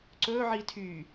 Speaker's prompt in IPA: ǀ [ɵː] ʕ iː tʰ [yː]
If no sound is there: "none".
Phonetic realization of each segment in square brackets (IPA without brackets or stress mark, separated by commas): ɵː, yː